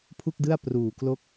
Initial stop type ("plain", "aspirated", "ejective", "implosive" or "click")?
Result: aspirated